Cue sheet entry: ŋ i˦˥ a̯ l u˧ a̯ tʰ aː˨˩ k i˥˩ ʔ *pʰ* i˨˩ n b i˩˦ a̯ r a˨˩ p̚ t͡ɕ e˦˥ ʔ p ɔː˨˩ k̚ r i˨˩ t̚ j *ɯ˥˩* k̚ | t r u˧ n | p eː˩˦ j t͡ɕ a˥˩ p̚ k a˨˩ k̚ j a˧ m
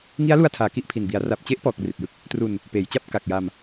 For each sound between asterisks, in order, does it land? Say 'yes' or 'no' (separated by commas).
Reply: yes, yes